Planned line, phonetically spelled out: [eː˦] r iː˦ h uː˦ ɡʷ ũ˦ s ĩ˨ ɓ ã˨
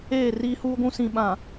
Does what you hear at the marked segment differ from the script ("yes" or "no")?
yes